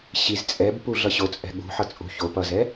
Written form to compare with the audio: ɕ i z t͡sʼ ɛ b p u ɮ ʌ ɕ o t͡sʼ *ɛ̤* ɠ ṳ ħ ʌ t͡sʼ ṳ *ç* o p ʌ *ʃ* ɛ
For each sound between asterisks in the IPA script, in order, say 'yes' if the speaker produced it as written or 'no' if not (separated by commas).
yes, yes, no